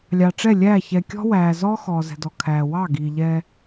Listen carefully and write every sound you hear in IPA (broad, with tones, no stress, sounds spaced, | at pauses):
lʲ ɑ˨ ʈ͡ʂ ɛ˦˨ lʲ æː˦˨ ç ɛ˨ kʲ ɔ̤˦ w æː˨ z ɔ˦ x ɔː˨ z ɛ̤˨ d ɔ˨ kʰ æː˨ w ɑ˦˨ ɡ iː˨ ʎ ɛ˦